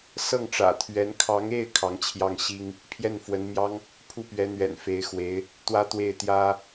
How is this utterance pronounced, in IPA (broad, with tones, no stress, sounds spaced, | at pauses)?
s ɤ˥˩ ŋ ʈ͡ʂ ä̰˨˩ t̪ʰ ɥ ɛ˧˥ n kʰ ɑ˧˥ ŋ e˥˩ ɪ̯ kʰ ɑ˧˥ ŋ t͡ɕʰ j ɑ˥˩ ŋ ɕ i˥ ŋ | pʰ j ɛ˥˩ n f w ə˧˥ n m j ɑ˥ ŋ | pʰ u˥˩ p ɥ ɛ˧˥ n̪ ɥ ɛ̰˨˩ n f e˧˥ ɪ̯ x w e˧˥ ɪ̯ | t̪ w ä˥ t̪ w e˥˩ ɪ̯ t̪ j ä˥